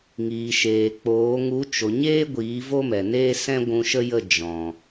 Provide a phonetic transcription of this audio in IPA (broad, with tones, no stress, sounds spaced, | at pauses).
ŋ iː˨ ʃ eː˨ k͡p oː˨˦ ŋ u˨˦ t͡ʃ o˨ ɲ eː˦ ɡʷ iː˨˦ v o˦ m ɛ˨ n eː˦ s ɛ̃˦ ɡʷ ũ˧ ʃ ə˦ j ə˦˨ d͡ʒ ɔ̃˨